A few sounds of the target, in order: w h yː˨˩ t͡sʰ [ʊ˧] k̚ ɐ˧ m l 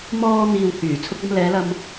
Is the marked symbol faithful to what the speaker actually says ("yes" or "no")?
yes